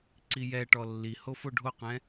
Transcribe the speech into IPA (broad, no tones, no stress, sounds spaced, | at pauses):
ǀ i j ɛ ʈ ɔ lː i h o f o ɖʱ o q ɛ̃